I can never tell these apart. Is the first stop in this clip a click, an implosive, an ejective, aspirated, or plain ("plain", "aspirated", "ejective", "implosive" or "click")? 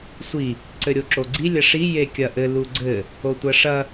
click